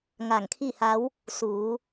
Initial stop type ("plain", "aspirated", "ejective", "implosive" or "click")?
aspirated